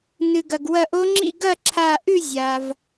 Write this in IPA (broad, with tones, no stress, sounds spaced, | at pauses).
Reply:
n ɨ˩ ɡ ɐ˩ ɡ w ɐ˧˩ ʔ o˧˥ ŋ͡ǁ ḭ˥˨ ɡ ɐ˥˨ ǁʰ a˧˩ ʔ ʉ˥˨ zʲ a˩ v